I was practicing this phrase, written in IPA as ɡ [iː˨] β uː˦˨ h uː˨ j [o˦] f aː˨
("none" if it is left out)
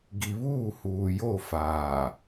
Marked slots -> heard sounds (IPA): i˨, o˦˨

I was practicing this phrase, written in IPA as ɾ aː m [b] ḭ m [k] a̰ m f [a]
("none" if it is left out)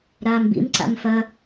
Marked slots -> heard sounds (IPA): b, ǀ, ɐ

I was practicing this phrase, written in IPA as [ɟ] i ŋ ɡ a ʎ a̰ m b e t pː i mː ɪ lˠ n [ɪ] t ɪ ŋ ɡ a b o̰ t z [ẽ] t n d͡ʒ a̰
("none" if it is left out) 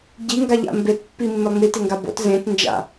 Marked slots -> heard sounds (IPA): ɟ, i, ẽ

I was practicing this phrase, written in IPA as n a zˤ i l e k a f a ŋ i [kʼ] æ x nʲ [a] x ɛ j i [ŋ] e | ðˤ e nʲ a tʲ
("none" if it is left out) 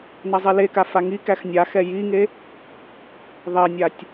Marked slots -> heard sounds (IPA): k, a, ŋ

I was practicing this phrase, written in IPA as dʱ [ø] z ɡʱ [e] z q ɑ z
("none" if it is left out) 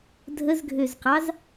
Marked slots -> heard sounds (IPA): ə, ø

